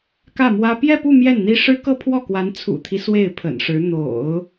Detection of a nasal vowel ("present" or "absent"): absent